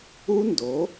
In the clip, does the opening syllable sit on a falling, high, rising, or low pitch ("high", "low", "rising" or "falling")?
high